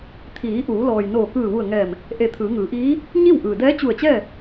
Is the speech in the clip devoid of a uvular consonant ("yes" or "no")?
yes